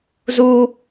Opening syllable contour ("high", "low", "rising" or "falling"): high